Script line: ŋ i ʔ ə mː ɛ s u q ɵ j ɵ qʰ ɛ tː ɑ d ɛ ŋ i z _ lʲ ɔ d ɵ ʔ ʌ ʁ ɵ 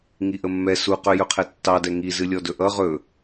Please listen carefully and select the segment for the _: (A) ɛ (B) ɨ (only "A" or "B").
B